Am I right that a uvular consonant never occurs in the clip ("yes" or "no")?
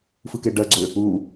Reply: yes